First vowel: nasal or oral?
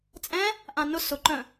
nasal